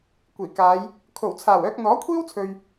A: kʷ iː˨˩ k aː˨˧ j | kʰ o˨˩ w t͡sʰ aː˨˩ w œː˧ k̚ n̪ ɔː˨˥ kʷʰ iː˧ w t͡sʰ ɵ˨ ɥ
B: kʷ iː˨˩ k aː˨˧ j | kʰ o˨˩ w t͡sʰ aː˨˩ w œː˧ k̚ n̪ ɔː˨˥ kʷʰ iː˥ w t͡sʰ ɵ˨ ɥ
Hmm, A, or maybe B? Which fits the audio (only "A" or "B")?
B